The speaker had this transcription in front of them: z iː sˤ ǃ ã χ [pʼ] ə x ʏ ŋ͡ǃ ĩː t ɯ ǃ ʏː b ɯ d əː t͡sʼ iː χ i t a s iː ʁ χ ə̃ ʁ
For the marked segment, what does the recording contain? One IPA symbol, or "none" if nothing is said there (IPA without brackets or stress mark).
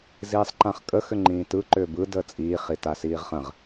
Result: kʼ